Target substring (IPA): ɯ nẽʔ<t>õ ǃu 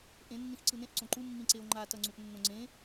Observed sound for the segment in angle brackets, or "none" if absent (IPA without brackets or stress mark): ǀ